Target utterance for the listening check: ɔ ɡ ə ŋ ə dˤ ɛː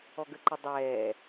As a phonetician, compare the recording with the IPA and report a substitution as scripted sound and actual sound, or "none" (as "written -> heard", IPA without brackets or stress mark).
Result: ŋ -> ǃ